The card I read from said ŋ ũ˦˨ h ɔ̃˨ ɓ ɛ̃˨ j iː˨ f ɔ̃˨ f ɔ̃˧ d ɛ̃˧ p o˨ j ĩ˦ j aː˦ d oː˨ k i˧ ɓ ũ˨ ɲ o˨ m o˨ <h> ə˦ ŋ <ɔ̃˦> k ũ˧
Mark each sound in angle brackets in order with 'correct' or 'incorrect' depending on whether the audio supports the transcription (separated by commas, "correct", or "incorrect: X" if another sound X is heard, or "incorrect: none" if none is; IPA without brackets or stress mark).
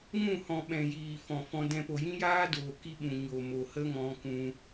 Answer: correct, incorrect: ɔ̃˧